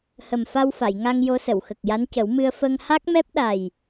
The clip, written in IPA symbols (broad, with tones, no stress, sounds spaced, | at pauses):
h ə˨˩ m f a˧ w f a˨˩˨ j ŋ a˧ ŋ j o˧˥ s ə˨˩˨ w x ə˨˩ k̚ j a˧˥ n c ə˨˩˦ w m ɨ˧ ə̯ f ə˧ ŋ h a˦˥ k̚ m ɛ˦˥ p̚ ɗ a˨˩ j